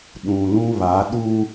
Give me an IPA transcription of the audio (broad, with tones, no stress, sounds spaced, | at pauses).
ɗ ũ˨ l ũ˦ β a˨˦ ɗ u˦